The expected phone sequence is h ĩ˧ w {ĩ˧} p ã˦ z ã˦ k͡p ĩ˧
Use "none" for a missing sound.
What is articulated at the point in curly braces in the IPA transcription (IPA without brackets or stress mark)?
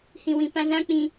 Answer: ĩ˧